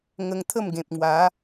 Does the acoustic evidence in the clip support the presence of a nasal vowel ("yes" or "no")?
yes